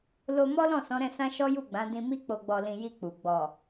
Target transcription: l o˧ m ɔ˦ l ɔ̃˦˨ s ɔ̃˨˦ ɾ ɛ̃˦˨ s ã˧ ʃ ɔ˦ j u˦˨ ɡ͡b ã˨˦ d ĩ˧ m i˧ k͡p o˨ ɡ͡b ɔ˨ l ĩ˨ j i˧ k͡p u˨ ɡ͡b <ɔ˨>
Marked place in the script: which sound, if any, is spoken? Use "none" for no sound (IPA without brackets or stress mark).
ɔ˨